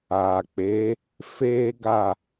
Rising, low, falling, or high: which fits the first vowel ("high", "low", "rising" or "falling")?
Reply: low